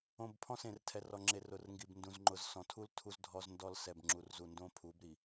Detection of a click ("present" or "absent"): present